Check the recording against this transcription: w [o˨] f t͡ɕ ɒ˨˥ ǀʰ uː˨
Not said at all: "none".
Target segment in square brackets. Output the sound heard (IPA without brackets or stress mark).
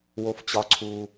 o˨